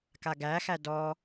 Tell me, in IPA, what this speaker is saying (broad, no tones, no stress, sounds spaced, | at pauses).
k a ɡ æ x æ d ɔ